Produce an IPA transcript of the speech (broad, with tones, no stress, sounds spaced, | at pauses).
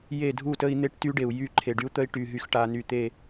j e˦˨ dʱ u˦˨ t ə˦ i̯ n̪ e˦ ʈ t y˦ ɖ e˨ u̯ j y˦˨ ǃʰ e˨ ɖ y˦ u̯ t̪ ə˦ i̯ ʈ y˨ ɦ y˨ x ʈ a˨ n y˨ t̪ e˦˨